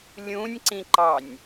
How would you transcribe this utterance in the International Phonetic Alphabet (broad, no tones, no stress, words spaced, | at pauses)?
lʲũnʲǀĩǃɑnʲ